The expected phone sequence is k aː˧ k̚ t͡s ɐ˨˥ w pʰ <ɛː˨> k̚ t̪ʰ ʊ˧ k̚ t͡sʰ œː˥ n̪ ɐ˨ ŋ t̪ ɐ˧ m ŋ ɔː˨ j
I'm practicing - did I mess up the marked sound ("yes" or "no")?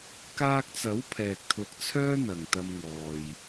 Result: no